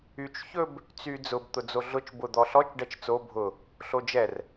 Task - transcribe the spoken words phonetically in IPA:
y t͡ʃ ç ɵ b | t͡s y d͡z ʊ b t̪ ʊ d͡z o ɮ ʊ t͡ʃ b ʊ d̪ ɔ ɬ ɔ t͡ʃ ɖ ɛ t͡ʃ t͡s o bʱ ʊ | ɬ o d͡ʒ ɛ r

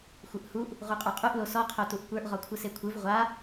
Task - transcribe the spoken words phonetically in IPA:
xʷ ɯ ʔ h u ʔ | ʁ u qʼ ə˞ qʼ u ʔ l o s ɔ qʰ o t u ʔ kʷ ə˞ ʔ ʁ ɔ kʷʰ ɯ s e kʷʰ ɯ v ʁʷ a

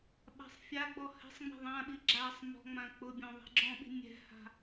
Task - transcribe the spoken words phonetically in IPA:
ɓ a̤ sˤ fʲ a ɡ͡b ɔ h ɛ̤ sˤ ŋ͡m ɛ̤ ðˤ ã ɓ i ɡ͡ǁ a sˤ m ɔ̤ ŋ͡m ã k͡p ʊ bʲ ɔ̃ ðˤ i̤ ɡ͡ǁ ɔ̃ ɓ i̤ nʲ ɛ̤ h a̤

